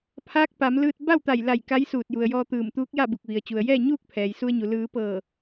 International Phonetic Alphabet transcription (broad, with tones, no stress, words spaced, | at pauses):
pʰaː˧˥k̚ pa˩˧mlɯː˧t̚ ba˥˨wt̪a˧˩jla˧˩j ka˧˥jsuː˧˩t̚ju˩ə̯jɔː˧ t̪ɯː˧˩mt̪uː˧˥k̚ja˥˨bu˧˩k̚ ʋi˩ə̯t͡ɕu˩ə̯jɛː˥˨ ɲuː˥˨k̚pʰɛː˩j su˧ə̯ɲu˩ lɯː˩˧pɤː˧˩